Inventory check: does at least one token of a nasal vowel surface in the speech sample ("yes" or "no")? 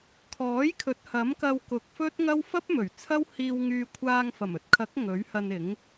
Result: no